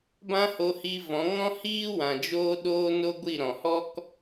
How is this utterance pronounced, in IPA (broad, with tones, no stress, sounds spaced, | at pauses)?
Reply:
b ã˦ h o˧ h i˧ v ɔ̃˨˦ ŋ ɔ̃˦ h iː˦ w ã˨ d͡ʒ oː˦ ɗ oː˦ n o˦ ɡʷ i˦˨ ɾ ɔ̃˨ h ɔ˦ k